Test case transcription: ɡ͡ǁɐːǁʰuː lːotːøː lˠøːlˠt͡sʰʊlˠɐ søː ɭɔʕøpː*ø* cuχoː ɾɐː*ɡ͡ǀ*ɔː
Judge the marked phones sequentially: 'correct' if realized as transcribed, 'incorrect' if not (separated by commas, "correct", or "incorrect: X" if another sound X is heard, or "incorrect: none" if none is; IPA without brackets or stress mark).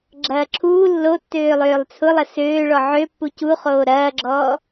incorrect: u, incorrect: ɡ͡ǁ